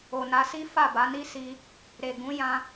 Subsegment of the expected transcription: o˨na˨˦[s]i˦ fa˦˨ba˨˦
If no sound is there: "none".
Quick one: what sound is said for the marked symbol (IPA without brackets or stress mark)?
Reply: s